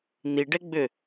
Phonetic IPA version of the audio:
n̪ i ɖ ɛ ɡ͡b ʏ

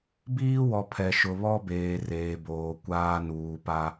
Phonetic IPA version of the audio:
b iː˦ w ɔ˨ pʰ ɛ˨ ʃ ʊ˨ β ɔ˦ b eː˨ r eː˨ b oː˨ kʷ aː˦ n uː˨ p a˦

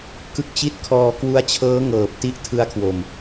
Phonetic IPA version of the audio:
k ɯ˦˥ k̚ t͡ɕ i˥˩ t̚ kʰ ɔː˧ k w u˦˥ a̯ t͡ɕʰ ɤː˦˥ ŋ ɤː˨˩ p̚ t i˥˩ ʔ tʰ ɯ˦˥ a̯ kʰ w o˨˩ m

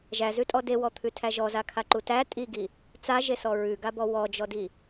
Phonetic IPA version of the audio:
ʒ æ z ʉ tʼ ɔ d e w ɔ t̪ʰ ʉ tʰ æ ʒ ɔ z a kʰ a ǃ u t æ tʼ i ɡ i | t͡s a ʒ e s ɔ ɹ ʉ ɡ a b ɔ w ɔ d͡ʒ ɔ d i

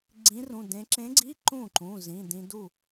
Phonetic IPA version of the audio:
ɡ͡ǀ ĩ˧˥ r ũ˩˧˩ d ẽ˧˥ ǁ ẽ˧˥ ɡ͡ǀ i˧˥˧ ǃ ũ˥˩ ǃ ũ˩˧˩ z ĩ˩˧˩ d ĩ˧ d u˥˩

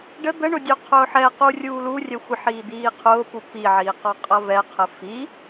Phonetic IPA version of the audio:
ɖ ə d̪ ə ɳ ʊ dʲ u qʰ ʊː ħ ɛ q u rʲ uː l u rʲ ɛ xʷ ɪ ħ iː d̪ iː qʰ ʊː p u p i ʕ iː q ɔ qʼ ʌ v ɛ qʰ ə f i

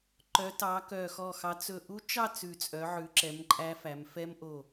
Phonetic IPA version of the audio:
ǃ œ˨˦ t ɑ˨˦ k œ˧˩ x ɔ˧˩ x ɑ˨˦ t͡s ɵ˧˩ ʔ u˦˥ t͡ʃ ɑ˥˧ t͡s ʉ˧˩ t͡sʼ œ˨˦ ʕ ʉ˨˦ ǁ ɛ˨˦ m ǃʼ æ˦˥ f æ˨˦ m f ɛ˦˥ m ʔ o˧˩

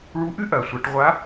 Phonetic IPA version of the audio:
ɭ u˧˥ ʔ ɨ˥ ʔ ɐː˩ sʷ a˩˧ ʈ ʁʷ a˧˥

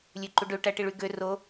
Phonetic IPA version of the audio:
lʲ ø ǃ u ɖ ø ʈ æ ʈ i ɭ y ɡ ø r o

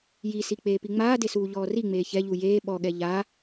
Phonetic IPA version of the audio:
j i s i k͡p eː p i ŋ͡m aː d e s uː ʎ ɔː r i ŋ͡m eː ç ɛ ʎ u j eː ɓ ɔ ɠ ɛ ʎ a

